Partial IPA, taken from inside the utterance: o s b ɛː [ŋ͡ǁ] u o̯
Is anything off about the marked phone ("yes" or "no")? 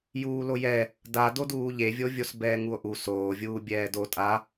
yes